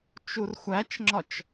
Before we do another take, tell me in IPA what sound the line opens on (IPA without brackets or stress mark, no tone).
t͡ʃ